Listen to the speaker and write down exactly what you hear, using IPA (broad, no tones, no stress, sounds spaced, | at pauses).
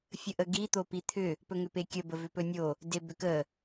fʲ ə ʔ ə ɡ i t̪ o p i t̪ʰ ʏ | p ɵ ŋ ʏ p e kʲ ə b ə v ʏ p ɵ nʲ o | d e b ʏ k ə